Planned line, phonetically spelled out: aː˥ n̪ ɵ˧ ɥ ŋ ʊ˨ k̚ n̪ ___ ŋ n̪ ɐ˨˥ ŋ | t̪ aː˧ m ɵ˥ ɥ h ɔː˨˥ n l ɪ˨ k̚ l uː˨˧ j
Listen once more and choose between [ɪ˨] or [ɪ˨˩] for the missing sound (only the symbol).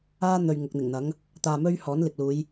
ɪ˨˩